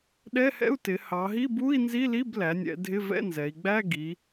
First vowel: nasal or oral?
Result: oral